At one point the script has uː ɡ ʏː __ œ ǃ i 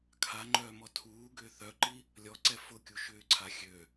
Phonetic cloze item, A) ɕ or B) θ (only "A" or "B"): B